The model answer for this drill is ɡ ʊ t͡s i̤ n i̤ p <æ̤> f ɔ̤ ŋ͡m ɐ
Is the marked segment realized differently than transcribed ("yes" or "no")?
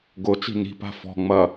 yes